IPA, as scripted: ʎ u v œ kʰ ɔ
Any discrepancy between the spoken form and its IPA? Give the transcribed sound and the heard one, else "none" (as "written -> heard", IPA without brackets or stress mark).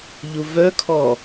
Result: none